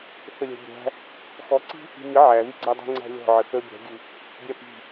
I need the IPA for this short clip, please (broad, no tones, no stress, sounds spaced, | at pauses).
θ ə lʲ æ̤ bʲ æ̤ | x ɔ ǀ i̤ | i̤ ɲ ə ʕ æ ð i ɡ͡ǀ æ dˤ i̤ ŋ͡ǀ æ̤ lʲ ɔ̤ ʕ ə θ ə bʲ æ̤ ɡʲ ʉ | bʲ æ p i̤